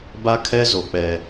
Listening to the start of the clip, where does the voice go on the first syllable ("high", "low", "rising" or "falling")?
high